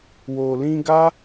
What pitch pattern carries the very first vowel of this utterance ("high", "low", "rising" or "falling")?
low